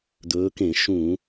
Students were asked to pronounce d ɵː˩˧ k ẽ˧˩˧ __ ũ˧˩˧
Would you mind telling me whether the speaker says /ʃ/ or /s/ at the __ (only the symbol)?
ʃ